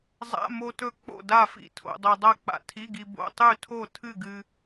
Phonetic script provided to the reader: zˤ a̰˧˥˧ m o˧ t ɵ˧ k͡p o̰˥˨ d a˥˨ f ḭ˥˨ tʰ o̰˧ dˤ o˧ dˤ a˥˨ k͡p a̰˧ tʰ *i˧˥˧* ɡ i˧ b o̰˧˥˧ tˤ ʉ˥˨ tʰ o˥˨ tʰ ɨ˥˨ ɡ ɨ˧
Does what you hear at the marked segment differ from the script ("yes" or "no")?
no